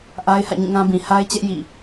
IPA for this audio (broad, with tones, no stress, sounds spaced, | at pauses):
ʔ a˦ ɪ̯ h ä̰˦˨ ɲ ĩ˦˨ ŋ ã˦ b ĩ˨ h a˦ ɪ̯ t͡ɕ ɛ˦ ʔ j ḭ˦˨